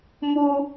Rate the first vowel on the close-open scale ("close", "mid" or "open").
close